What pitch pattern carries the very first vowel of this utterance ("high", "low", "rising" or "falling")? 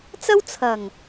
high